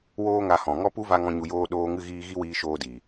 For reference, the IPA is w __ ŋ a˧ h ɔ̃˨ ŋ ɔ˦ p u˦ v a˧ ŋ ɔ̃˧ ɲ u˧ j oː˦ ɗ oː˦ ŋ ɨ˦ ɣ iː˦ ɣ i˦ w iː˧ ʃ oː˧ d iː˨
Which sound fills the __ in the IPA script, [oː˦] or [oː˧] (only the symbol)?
oː˦